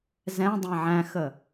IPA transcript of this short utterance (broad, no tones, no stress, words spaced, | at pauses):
zɛ̃dˤɛ̃ ʕæ̃xə